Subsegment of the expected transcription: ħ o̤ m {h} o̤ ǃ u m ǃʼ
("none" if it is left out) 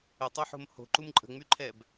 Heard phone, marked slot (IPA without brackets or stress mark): h